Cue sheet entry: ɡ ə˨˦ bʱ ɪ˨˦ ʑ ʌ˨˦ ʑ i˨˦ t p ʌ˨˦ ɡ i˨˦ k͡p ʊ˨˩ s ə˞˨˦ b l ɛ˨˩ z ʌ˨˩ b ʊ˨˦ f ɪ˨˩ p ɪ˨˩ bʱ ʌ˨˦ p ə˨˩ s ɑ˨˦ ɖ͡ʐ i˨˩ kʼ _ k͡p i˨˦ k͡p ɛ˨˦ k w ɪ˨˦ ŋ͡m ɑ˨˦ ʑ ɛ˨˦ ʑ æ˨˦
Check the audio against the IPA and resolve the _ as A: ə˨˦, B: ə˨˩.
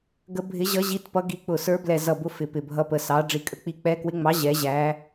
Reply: A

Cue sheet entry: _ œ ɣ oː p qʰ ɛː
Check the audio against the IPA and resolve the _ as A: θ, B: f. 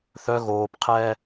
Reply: A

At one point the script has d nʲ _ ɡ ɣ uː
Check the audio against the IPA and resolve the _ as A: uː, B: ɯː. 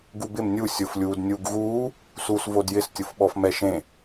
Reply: A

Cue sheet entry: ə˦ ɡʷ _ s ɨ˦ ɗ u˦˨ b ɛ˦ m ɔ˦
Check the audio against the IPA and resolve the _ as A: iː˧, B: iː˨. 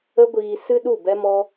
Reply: A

